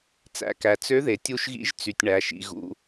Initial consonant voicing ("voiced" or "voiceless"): voiceless